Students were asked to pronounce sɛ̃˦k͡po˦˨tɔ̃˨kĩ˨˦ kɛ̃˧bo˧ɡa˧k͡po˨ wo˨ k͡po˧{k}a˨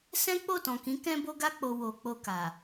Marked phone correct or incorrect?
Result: correct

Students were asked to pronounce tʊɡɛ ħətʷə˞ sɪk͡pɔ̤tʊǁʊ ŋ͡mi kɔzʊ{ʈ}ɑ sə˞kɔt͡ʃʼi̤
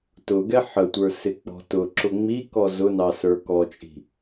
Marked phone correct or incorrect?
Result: incorrect: n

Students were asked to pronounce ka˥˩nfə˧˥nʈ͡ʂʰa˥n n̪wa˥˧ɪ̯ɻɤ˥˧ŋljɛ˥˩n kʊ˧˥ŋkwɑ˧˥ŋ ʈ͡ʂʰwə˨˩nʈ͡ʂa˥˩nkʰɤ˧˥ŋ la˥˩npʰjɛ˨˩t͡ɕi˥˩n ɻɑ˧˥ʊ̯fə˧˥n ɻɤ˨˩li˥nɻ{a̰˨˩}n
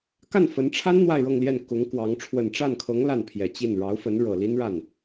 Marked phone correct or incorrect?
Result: incorrect: a˥˩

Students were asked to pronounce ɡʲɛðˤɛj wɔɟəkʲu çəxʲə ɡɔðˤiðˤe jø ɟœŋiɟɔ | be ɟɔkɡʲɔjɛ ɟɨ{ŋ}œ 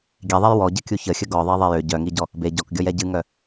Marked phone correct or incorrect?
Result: correct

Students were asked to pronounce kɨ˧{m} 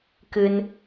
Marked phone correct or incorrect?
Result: incorrect: n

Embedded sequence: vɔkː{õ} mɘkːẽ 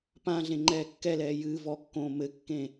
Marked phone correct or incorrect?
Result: incorrect: õː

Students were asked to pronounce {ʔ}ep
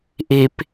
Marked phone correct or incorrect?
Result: correct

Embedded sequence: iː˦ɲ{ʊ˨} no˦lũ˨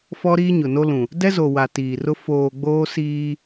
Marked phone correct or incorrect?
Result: correct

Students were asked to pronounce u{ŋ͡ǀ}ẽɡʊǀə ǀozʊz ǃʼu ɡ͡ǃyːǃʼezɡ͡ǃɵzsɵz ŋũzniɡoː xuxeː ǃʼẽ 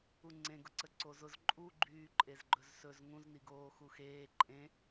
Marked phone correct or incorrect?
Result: correct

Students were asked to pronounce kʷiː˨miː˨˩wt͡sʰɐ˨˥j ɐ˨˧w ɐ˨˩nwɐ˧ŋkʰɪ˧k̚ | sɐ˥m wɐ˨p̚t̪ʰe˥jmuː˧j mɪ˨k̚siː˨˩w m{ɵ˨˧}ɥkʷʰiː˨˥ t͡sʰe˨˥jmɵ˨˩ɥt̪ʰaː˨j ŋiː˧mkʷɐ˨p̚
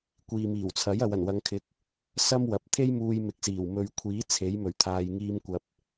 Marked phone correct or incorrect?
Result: incorrect: ɵ˨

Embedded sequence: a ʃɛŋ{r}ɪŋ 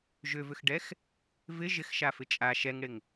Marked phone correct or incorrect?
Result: incorrect: ɽ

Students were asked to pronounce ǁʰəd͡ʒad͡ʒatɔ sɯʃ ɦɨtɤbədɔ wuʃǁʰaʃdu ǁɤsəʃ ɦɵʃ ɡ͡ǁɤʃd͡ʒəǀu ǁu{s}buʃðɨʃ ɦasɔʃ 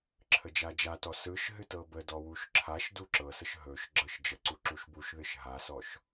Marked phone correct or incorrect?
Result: incorrect: ʃ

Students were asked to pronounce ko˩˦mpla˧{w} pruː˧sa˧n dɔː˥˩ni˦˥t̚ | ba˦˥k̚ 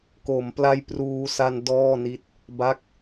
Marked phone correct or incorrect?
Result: incorrect: j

